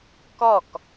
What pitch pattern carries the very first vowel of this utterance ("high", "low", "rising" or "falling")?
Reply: falling